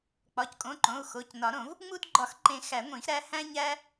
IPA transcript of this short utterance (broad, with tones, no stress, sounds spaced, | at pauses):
k͡p ɒ˩˧˩ c kʼ õ˩˧˩ ǃ õ˩˧˩ u̯ x o˩˧˩ c n ɒ˨˩˦ ɾ õ˨˩˦ v | ŋ͡m u˦ d ɡ͡ǃ ɒ˨˩˦ x ǃ ẽ˨˩˦ x æ˨˩˦ ŋʷ ĩ˨˩˦ x ɾ æ˦ h æ̃˦ ɲ æ˦